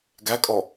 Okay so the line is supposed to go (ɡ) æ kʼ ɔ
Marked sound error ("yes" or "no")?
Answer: no